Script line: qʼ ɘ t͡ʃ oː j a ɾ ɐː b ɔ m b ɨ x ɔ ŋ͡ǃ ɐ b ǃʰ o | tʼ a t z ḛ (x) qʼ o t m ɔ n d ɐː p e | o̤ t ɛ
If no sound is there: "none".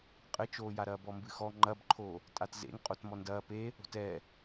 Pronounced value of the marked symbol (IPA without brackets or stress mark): ŋ